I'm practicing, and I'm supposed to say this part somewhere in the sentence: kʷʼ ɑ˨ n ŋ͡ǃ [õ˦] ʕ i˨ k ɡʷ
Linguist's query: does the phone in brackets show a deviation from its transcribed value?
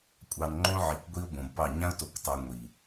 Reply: no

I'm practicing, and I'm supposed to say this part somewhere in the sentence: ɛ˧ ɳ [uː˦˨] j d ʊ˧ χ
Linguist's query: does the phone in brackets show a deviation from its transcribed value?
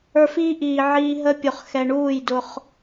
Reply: no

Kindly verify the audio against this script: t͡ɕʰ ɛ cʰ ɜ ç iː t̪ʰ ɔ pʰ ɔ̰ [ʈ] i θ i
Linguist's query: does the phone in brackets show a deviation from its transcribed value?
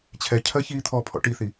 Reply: no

